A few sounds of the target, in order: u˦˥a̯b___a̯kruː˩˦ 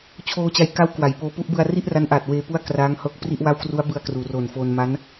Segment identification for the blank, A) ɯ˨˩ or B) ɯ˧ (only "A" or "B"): B